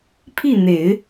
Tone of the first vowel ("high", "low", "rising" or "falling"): falling